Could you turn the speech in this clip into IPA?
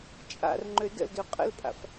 t͡ʃʼ a̰ r ŋ͡ǃ ø d ə̰ l d ø qʼ ə̰ l pʼ a̰ f

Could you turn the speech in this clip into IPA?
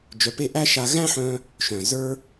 d͡ʒ œ˨˦ p e˦˨ ʔ æ˦ ʃ a˧ ɣ æ̃˦ ħ œ̃˧ | ʃ œ̃˨ z ə˞˦

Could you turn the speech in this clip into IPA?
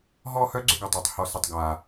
ɦ ɔ˥˧ h œ˥ ɡ͡ǀ ʏ˥ ɡ œ˧˩ tˤ ɔ˩˧ tˤ h ɔ˧˩ s ə˧˩ tˤ ɡ a˧˩

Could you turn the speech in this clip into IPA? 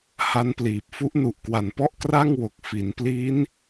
h a˦˥ n p l iː˨˩ p̚ f u˦˥ ʔ n u˨˩ ʔ k w a˨˩ n p ɔ˥˩ ʔ k r a˥˩ ŋ w o˨˩ k̚ f i˩˦ n p l i˦˥ n

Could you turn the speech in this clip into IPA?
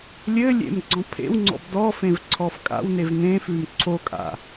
lʲ ɘ lʲ ḛ m ɡ͡ǀ ɔ̃ pʰ ḛ w ŋ͡ǀ ɔ̰ b d ɔ f ẽ v ǀʰ ɔ f kʼ a̰ w n e v n̪ ẽ f ʉ m ǀʰ o kʼ a̰

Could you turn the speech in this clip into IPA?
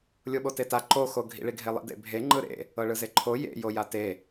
lʲ o ɓ o t e t a ǃ o x o ɡʱ ḭ ɭ i ɡʱ e lˠ ḭ d ḛ bʱ e ŋ͡ǃ ɯ ɾ ḛ | ɤ ɭ ɯ z e ǃʰ o j ḛ j o j a t e

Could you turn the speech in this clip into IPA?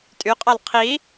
tʼ y qʼ ɑ l qʰ i

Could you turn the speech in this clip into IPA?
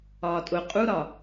ɒː tʼ ʊ qʼ u ɾ ɒ

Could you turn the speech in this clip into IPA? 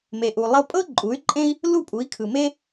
m e˩ ʔ u˩ lˠ ɤ˧ pʼ ɤ˥ ǃʼ u˩˥ y̯ ǃʼ ẽ˥ i̯ | l u˥˩ pʼ u˩˥ i̯ kʰ ɯ˩ m e˥

